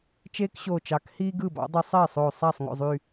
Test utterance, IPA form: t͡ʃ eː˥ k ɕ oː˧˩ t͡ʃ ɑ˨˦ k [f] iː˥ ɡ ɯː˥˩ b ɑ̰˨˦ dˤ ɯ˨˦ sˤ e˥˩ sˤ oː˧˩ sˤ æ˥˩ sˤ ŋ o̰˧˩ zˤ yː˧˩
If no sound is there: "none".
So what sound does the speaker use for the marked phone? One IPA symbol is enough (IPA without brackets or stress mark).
h